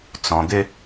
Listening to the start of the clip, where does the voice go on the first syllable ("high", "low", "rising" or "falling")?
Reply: low